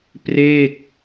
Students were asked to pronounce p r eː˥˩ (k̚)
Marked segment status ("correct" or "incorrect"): correct